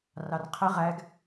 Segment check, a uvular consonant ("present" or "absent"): present